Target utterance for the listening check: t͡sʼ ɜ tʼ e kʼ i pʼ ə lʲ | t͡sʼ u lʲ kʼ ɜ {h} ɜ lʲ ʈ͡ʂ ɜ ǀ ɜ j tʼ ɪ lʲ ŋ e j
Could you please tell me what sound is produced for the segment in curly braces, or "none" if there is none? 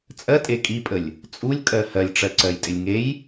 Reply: h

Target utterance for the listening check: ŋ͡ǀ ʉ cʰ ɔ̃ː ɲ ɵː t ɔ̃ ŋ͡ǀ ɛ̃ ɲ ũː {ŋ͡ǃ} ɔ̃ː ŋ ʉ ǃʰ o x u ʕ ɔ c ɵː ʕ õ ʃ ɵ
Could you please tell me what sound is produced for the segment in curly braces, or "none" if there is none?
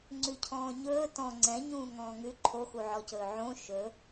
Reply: ŋ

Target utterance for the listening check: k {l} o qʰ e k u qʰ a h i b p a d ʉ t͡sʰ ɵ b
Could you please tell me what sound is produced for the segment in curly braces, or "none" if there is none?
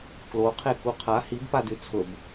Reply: l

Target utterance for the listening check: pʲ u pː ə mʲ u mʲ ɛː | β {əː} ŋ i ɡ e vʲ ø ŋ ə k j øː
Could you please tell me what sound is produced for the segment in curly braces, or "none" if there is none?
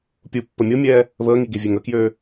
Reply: əː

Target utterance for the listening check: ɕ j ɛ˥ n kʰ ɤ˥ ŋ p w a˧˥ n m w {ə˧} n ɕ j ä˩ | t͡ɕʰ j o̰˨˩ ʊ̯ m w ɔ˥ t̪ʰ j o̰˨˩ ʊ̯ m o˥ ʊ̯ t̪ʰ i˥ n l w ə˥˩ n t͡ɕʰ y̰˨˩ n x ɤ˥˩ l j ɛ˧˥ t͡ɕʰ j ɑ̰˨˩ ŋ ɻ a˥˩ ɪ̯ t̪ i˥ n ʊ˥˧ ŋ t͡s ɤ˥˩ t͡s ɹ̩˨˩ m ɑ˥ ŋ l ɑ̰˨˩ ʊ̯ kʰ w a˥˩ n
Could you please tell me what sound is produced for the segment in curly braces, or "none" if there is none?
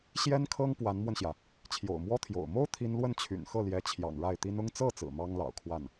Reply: ə˧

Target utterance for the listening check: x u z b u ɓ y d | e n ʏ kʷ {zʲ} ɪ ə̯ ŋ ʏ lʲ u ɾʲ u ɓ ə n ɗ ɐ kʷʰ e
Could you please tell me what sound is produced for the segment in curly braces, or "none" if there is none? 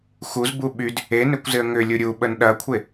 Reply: z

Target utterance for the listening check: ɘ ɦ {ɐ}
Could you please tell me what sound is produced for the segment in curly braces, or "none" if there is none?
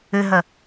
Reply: ɐ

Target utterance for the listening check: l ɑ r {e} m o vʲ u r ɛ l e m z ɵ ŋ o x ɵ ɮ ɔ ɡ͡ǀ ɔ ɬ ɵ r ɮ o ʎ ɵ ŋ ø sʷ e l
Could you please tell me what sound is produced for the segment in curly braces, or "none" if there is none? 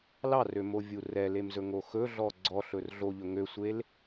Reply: ø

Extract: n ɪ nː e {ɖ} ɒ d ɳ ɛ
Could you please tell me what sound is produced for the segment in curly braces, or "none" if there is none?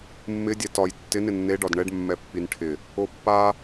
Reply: ɖ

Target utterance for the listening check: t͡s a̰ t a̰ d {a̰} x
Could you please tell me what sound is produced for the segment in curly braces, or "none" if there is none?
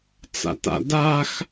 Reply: a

